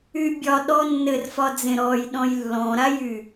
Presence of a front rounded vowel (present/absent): present